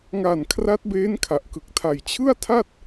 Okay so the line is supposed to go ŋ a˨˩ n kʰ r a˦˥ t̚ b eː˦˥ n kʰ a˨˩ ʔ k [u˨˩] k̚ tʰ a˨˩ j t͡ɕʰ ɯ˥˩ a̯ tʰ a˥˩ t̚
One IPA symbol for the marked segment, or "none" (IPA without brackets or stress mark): ɯ˨˩